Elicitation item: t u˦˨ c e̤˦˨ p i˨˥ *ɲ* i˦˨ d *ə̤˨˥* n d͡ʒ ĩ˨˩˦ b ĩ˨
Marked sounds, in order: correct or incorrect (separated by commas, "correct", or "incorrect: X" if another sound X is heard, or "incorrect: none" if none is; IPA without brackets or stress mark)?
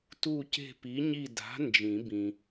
correct, incorrect: a̤˨˥